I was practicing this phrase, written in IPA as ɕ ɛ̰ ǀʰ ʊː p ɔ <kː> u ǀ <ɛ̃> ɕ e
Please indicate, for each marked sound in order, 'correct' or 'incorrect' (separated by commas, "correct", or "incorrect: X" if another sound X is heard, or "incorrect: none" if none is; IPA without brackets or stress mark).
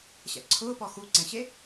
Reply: incorrect: x, correct